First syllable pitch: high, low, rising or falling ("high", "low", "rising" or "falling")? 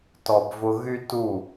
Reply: low